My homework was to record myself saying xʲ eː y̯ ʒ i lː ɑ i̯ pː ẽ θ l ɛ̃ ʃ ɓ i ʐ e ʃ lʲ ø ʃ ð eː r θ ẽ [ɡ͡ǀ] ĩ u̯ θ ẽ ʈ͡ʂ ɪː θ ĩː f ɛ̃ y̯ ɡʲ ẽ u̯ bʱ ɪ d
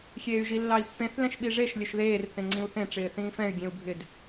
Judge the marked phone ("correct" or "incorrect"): incorrect